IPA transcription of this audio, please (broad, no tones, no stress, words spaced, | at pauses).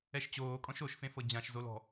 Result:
ɛʃt͡ɕoːkʼɔ̃ʃ oʃfẽfɤ d͡ʑãʃzolɔ̤